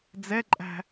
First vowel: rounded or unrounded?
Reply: unrounded